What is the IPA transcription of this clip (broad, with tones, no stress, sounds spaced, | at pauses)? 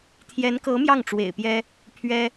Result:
t̪ʰ j ɛ˧˥ n k ɤ˧˥ m j ɑ˥˩ ŋ ʈ͡ʂ w ḛ˨˩ ɪ̯ p j ɛ˥ | pʰ ɥ ɛ˥